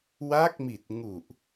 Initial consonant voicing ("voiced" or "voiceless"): voiced